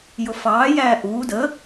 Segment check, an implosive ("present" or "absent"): absent